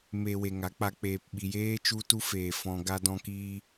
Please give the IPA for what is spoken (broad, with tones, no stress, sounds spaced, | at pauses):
m e˧ w e˨ ŋ a˨˦ k͡p a˧ k͡p eː˨ p ɓ i˨ j eː˦ t͡ʃ u˦ t u˦ f eː˨ f ɔ̃˧ ɡ a˧ d ɔ̃˧ k iː˧